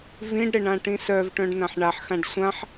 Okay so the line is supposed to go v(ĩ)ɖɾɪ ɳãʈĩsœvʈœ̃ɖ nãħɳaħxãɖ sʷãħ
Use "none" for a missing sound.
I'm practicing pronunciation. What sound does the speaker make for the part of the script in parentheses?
ĩ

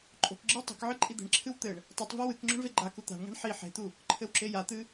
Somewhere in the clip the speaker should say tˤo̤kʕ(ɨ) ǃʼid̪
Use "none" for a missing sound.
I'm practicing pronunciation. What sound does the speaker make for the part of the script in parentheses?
ɨ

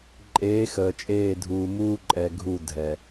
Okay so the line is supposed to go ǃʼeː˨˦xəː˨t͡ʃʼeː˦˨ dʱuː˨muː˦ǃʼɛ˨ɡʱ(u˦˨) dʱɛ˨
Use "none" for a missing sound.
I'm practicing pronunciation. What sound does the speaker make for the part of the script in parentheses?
u˦˨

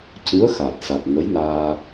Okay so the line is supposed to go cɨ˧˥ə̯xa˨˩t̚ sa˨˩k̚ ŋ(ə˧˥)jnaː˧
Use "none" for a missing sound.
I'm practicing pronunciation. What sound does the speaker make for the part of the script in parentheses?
ə˧˥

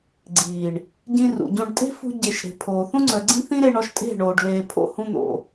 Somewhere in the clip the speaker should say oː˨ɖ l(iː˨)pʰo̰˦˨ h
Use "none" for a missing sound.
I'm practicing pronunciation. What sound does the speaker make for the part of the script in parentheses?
eː˨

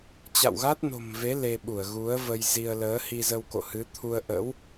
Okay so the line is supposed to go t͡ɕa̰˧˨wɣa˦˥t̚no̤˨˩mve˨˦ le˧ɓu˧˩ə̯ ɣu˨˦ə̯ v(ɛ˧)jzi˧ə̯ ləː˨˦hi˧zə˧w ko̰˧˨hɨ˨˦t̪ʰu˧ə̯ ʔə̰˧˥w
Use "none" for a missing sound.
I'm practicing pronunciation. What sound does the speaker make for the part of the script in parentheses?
ə˧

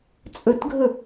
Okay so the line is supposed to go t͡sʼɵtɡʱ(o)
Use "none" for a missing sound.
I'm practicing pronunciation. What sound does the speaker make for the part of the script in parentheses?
ɵ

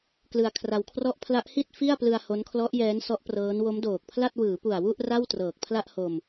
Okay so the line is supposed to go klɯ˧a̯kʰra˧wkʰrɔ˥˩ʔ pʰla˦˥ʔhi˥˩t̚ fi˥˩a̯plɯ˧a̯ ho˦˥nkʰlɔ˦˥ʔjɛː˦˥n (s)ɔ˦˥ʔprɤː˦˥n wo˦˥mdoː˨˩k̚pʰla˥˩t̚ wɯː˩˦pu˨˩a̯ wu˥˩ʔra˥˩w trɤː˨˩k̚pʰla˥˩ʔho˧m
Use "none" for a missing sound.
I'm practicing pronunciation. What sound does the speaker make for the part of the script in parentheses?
s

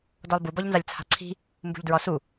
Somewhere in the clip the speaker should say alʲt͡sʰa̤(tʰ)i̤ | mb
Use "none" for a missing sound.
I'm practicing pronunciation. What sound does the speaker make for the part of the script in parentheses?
ǀʰ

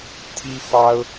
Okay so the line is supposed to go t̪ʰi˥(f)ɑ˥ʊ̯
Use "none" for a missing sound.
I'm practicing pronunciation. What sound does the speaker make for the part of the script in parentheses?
f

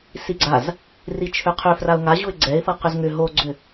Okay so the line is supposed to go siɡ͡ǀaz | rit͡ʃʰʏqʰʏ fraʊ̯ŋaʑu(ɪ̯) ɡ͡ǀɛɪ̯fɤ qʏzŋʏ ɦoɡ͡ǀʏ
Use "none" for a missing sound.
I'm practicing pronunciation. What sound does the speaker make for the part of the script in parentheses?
ɪ̯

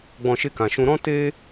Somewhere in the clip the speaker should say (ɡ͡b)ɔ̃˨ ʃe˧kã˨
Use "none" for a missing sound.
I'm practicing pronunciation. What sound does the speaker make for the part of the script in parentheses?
ɡ͡b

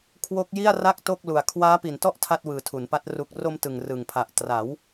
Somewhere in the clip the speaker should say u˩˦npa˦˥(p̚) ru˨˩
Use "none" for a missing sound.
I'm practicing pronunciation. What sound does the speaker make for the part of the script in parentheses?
t̚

